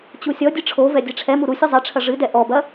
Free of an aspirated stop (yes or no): no